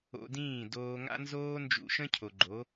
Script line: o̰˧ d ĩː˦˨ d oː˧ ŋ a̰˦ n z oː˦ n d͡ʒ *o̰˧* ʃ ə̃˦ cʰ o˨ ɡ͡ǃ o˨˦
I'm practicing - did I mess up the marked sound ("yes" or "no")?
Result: yes